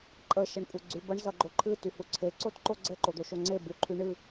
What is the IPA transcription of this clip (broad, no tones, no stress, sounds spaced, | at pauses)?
ǃʼ ə ʃ ə ɳ kʷʼ e ɡ͡ǀ y b ʌ ɳ z ʌ ɡ͡ǃ o ǃʰ ɨ t y h u ǀʰ e ǀ o t ǃ o ɡ͡ǀ ɘ ǃ o d̪ o ʃ o ŋ͡ǀ e b u ǃʰ y ɳ ɨ